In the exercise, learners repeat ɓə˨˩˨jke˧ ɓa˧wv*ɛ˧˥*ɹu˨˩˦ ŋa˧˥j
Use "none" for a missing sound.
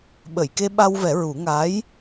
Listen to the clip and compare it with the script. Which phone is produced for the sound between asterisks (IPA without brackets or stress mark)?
ɛ˨˩˦